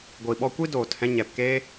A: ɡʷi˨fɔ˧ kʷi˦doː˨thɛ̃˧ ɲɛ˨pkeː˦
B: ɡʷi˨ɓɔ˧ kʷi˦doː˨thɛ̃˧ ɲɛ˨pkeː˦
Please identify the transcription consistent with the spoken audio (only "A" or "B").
B